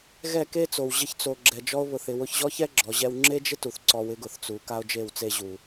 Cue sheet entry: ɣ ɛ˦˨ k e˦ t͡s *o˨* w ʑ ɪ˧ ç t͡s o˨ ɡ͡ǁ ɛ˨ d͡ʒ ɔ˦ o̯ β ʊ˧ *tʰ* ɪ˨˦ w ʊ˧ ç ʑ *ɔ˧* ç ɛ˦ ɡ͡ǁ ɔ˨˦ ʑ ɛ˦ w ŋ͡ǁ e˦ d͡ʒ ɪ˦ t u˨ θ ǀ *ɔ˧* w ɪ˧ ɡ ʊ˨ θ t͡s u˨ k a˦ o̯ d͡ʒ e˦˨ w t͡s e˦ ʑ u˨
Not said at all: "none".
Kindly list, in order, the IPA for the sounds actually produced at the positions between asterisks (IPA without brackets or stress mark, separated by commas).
o˨, θ, ɔ˦, ɔ˧